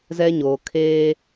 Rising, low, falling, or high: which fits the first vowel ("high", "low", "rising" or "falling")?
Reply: high